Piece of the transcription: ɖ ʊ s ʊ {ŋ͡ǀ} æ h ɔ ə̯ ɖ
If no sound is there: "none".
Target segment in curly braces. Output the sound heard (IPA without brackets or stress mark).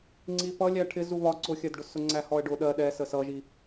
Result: ŋ͡ǀ